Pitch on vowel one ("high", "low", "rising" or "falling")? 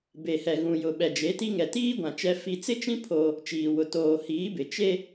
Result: low